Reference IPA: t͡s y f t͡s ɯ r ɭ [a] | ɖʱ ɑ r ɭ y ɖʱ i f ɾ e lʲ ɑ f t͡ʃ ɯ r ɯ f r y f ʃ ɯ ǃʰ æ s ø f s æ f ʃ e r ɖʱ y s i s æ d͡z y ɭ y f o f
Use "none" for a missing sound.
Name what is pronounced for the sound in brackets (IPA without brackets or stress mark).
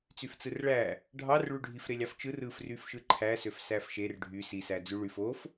æ